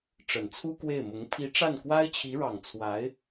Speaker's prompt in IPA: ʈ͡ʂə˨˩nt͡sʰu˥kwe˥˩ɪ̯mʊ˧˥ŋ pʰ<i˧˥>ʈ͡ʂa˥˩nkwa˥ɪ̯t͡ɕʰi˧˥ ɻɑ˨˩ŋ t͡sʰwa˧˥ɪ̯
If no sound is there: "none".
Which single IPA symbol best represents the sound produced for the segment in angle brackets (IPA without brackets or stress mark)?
i˧˥